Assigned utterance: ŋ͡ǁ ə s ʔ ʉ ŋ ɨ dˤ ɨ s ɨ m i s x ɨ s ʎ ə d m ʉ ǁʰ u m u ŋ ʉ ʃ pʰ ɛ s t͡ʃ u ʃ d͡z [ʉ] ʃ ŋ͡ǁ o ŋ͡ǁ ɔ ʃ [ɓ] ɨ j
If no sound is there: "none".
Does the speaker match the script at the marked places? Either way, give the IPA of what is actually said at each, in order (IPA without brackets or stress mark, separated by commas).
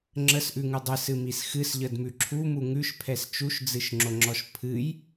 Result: ɨ, pʰ